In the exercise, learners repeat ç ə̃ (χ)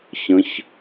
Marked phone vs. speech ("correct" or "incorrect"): incorrect